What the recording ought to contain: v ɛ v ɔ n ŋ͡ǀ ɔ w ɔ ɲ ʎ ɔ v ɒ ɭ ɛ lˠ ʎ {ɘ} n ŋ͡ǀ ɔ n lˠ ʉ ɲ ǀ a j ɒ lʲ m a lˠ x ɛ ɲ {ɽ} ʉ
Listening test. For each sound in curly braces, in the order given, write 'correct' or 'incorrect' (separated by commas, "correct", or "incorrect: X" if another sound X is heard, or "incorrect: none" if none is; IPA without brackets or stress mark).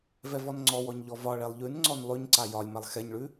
incorrect: ʉ, incorrect: ɭ